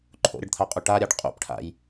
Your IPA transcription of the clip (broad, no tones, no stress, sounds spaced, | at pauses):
ǃʰ o̰ ɾʲ ʌ ɖ t̪ʰ a qʼ u ʈ a ɾʲ a ɖ qʼ ṵ p ʈʰ a̰ j